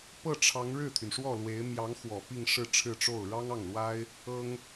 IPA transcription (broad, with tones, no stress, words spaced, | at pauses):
pɤ˥˩ʈ͡ʂʰɑ˧˥ŋ ɻɻ̩˥˩t̪ʰy˩nʂwɔ˥˩lwe˧˥ɪ̯ mjɑ˧˥ŋxwɔ˨˩ pi˥˧ŋʂɻ̩˥˧ʈ͡ʂʰɻ̩˥˧ʈ͡ʂo˥˩ʊ̯ ɻɑ˥ŋɑ˥˩ŋlwa˥ɪ̯ | ɤ˥ŋ